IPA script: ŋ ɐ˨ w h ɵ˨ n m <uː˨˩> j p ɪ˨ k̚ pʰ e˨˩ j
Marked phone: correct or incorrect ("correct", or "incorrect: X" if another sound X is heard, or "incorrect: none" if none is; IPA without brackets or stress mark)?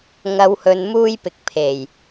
incorrect: uː˧